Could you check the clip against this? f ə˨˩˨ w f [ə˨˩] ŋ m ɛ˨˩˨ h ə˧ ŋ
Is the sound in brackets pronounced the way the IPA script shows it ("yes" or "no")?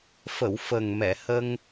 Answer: yes